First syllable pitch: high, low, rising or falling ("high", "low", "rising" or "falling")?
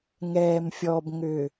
low